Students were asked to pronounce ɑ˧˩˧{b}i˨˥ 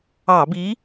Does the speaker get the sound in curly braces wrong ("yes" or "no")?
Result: no